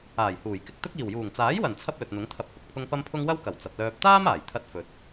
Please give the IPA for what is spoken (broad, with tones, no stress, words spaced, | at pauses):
aː˨˩jhuː˨˩j kɪ˨k̚t̪ʊ˥k̚ iː˨˩wjuː˨˩ŋt͡saː˨˥jwɐ˨˩n t͡sʰɐ˥p̚lɵ˨t̚n̪ʊ˨˥ŋ t̪ʰɐ˧p̚hʊ˨k̚pʰʊ˥ŋ pɐ˧mpʰʊ˧ŋ wɐ˥wkɐ˨˩w t͡sɐ˨p̚lœː˧p̚ t̪aː˥m aː˨˩j t̪ʰɐ˧t̚fɵ˨t̚